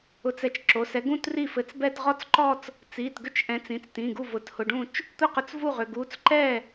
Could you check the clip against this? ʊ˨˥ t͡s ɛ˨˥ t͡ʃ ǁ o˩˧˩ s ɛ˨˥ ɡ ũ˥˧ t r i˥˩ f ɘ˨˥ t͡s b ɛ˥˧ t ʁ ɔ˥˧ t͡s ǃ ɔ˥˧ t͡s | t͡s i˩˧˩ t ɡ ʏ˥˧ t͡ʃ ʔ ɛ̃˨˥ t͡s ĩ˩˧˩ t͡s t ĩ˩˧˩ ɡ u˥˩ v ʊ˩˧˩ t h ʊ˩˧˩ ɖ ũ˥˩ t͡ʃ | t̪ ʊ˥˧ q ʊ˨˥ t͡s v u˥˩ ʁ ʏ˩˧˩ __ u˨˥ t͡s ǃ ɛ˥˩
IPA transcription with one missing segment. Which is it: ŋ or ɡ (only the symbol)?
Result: ɡ